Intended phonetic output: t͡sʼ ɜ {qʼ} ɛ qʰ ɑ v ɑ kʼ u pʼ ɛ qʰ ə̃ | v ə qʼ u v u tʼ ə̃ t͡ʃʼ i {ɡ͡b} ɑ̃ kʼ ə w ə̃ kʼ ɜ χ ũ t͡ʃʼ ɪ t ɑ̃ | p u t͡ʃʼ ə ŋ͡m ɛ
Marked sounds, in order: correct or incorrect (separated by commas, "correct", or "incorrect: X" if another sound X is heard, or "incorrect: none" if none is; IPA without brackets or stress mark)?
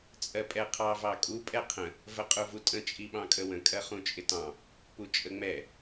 incorrect: pʼ, incorrect: ɓ